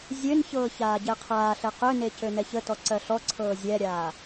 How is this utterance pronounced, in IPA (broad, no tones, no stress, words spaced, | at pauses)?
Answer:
zʲønçɤː çaːɟɛqʰaːɬɛ qøne cønɛçətɔ ǀɜɬɔǀʰɤː zʲɛɾʲaː